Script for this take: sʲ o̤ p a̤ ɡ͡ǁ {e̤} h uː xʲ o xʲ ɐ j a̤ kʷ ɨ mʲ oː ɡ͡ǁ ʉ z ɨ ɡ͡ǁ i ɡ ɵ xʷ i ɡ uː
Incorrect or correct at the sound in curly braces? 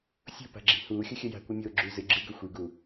incorrect: i̤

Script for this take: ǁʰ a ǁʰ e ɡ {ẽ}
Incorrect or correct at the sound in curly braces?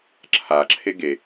incorrect: e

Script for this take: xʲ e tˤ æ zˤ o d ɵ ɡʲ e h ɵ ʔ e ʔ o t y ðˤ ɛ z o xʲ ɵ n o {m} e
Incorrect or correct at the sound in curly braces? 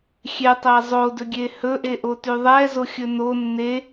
incorrect: nː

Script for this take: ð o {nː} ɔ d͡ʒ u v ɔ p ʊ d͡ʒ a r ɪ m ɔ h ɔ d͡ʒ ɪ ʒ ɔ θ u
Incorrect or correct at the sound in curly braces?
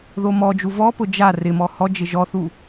incorrect: m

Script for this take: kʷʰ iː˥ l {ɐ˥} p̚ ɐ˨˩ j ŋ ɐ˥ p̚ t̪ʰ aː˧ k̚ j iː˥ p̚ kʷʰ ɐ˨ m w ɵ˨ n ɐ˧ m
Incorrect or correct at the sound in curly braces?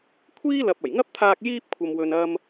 incorrect: ɐ˨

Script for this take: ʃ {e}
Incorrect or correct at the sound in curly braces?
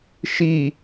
incorrect: i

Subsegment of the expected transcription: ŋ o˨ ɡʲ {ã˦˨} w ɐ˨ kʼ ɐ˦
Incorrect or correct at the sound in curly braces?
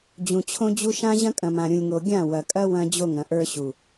correct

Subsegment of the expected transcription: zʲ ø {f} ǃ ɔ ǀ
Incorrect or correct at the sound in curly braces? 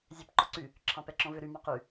incorrect: p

